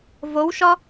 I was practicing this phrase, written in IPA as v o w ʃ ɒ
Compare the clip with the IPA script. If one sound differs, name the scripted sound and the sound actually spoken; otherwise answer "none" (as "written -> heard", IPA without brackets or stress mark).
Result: none